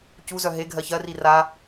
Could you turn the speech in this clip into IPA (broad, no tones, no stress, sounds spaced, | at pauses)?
c u z œ ɦ e ɡʱ ɜ ç ɜ r i r a